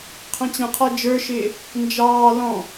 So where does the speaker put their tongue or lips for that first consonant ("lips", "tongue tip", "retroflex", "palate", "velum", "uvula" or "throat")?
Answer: uvula